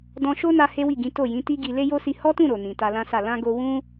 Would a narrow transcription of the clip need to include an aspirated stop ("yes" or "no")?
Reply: no